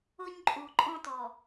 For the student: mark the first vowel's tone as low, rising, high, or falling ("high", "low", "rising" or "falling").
high